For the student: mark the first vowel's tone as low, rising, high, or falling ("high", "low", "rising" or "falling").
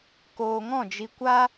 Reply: low